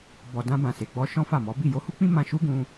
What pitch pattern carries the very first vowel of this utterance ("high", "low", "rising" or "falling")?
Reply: low